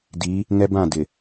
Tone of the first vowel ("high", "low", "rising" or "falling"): rising